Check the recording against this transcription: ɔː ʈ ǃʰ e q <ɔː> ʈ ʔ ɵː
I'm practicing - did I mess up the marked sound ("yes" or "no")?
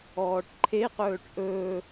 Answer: yes